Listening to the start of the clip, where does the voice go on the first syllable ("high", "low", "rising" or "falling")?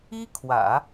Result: high